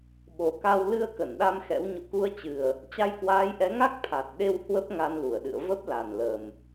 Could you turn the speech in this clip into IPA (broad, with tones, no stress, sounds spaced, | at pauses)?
ɓ o˨˩ k a˧ w l ɨ˧ ə̯ k ə˧˩ n ɗ a˧ m x ɛ̰˧˥ w ɲ o̰˧˨ k u˧ ə̯ t͡ɕ ɨ˨˩ ə̯ | t͡ɕ a˧ j k w aː˨˦ j ʔ ɛ˨˦ ŋ a˦˥ k̚ t̪ʰ a˨˩ t̚ ɗ e˧ w h w ə˦˥ p̚ ŋ a˧ n l u˧˩ ə̯ ɗ ɨ̰˧˨ ə̯ v ə˦˥ p̚ l a˨˩ n l ə˨˩ m